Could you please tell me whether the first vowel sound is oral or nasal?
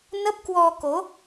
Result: oral